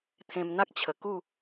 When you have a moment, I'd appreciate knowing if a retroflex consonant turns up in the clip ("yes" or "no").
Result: no